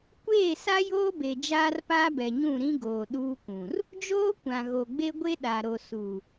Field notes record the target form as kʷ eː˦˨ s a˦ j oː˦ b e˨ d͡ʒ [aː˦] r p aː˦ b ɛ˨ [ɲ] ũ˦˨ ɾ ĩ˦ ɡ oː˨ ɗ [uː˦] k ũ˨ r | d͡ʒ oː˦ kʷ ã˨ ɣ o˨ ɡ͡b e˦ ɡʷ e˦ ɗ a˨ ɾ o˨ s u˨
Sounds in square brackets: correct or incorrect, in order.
correct, correct, correct

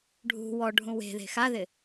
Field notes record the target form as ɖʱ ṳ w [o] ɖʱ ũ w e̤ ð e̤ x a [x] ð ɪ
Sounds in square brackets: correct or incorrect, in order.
incorrect: ɔ, incorrect: none

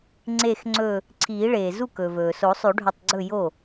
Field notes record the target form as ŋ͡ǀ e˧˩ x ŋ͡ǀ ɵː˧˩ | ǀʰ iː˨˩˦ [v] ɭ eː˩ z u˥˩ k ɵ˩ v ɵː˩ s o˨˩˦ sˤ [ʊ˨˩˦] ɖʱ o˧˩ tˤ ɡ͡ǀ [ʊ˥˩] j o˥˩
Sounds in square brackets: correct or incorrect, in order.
incorrect: none, incorrect: ʉ˨˩˦, incorrect: ɵ˥˩

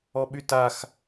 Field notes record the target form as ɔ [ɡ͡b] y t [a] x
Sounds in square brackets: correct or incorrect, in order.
incorrect: ɓ, correct

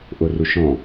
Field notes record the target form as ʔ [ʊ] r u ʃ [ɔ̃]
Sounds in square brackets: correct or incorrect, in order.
correct, correct

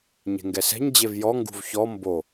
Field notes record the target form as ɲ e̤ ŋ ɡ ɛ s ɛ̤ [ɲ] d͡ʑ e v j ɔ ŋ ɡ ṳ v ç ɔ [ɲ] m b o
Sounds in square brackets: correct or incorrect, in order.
correct, incorrect: none

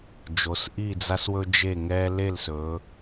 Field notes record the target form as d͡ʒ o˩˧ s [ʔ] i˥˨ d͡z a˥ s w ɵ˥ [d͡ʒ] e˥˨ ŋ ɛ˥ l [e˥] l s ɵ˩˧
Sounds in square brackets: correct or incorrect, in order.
correct, correct, incorrect: e˥˨

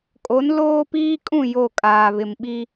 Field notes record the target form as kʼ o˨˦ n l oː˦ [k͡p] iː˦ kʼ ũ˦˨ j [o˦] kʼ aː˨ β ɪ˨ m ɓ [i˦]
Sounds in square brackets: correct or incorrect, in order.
incorrect: p, incorrect: o˦˨, correct

